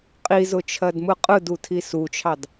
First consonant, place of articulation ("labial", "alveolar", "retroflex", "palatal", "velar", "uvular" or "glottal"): uvular